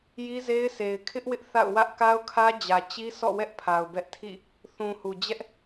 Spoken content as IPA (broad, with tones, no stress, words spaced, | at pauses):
ji˦ze˦ɪ̯se˨ɪ̯ kʰɪ˦ʔ wɪ˦ʔθa̰˦˨ʊ̯wä˦ʔ ka˦ʊ̯kʰä˦d͡ʑä˨ t͡ɕi˦sɔ̰˦˨wɛ˦ʔ pʰa˨ʊ̯bɛ˦ʔ tʰḭ˦˨ | θũ˨hu˨d͡ʑɛ˦ʔ